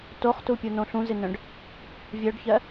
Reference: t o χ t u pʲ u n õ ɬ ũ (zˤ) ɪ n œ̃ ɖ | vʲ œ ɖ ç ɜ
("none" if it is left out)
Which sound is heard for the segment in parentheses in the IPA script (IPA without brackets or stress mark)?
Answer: z